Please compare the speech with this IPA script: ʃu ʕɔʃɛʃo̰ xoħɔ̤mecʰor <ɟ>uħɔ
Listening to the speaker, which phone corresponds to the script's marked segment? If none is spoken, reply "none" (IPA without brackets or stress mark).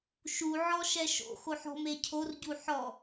ɟ